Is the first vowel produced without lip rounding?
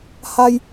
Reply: yes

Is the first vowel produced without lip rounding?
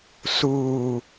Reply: no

